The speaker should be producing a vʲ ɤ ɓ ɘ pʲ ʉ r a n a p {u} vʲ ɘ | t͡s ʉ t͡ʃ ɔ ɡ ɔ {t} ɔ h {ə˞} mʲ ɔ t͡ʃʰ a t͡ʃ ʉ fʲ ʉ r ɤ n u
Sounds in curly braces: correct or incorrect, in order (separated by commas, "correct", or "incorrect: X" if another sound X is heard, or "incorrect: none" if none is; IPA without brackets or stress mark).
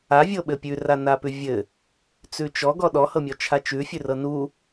incorrect: ʉ, incorrect: ɗ, incorrect: ɤ